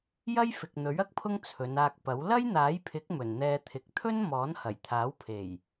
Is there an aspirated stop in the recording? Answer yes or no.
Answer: yes